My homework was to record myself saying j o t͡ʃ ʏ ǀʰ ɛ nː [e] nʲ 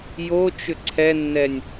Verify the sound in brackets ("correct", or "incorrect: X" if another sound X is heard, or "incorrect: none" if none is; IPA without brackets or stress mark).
incorrect: ɛ